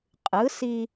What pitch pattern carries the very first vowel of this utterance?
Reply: rising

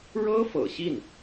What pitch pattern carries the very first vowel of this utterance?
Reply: high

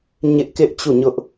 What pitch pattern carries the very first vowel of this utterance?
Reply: high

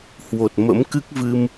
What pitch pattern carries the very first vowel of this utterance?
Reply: low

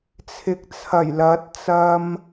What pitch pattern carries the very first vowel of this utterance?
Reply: rising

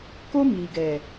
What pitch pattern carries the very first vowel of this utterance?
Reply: high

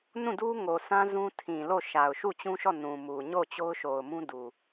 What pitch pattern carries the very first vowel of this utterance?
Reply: falling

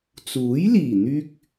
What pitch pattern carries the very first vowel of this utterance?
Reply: rising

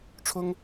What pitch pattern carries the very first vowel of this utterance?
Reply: high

